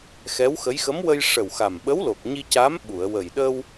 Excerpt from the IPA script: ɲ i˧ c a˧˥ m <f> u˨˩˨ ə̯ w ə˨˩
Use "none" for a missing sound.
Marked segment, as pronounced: ɓ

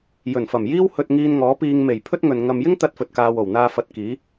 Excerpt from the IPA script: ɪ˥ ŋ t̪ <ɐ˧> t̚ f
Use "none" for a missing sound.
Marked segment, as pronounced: ɐ˧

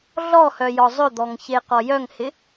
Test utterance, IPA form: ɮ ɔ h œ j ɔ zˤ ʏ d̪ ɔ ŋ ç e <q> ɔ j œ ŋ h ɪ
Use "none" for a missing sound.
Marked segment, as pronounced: q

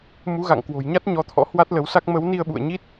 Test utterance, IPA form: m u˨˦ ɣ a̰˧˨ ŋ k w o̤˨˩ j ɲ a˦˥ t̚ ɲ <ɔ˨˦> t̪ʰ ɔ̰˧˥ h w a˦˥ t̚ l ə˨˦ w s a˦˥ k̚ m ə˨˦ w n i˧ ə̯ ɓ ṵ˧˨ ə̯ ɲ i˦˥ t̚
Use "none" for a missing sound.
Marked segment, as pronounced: ɔ˨˦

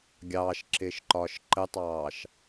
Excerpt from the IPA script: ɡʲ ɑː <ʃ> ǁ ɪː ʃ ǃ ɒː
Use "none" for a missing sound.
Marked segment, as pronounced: ʃ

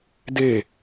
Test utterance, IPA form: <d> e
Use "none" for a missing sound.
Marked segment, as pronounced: d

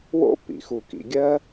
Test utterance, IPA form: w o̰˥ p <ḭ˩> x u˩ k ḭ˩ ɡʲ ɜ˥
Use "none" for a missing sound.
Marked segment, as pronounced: ḭ˩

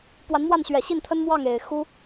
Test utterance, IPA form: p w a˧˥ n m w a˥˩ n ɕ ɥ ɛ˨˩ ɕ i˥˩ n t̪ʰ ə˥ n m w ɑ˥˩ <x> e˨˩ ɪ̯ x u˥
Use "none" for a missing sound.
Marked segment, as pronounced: ŋ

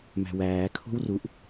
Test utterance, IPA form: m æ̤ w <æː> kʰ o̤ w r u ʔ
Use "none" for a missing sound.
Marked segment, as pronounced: æː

